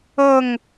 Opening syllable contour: falling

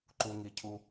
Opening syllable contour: low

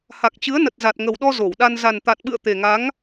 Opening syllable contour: low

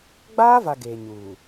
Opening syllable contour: high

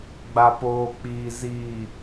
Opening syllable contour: low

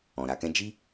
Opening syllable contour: low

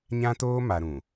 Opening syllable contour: high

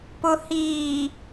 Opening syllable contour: low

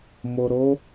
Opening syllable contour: low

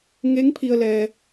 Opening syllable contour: rising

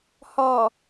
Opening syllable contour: low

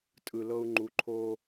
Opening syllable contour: low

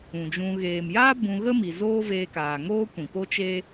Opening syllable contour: low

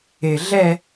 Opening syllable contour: low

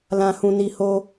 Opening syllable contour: low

